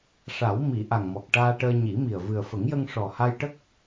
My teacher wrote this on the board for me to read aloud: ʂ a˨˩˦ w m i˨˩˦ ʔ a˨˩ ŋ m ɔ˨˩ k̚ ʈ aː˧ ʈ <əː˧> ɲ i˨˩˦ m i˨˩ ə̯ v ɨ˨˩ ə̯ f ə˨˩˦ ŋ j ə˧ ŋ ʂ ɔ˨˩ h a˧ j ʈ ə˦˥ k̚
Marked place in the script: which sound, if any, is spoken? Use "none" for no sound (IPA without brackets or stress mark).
əː˧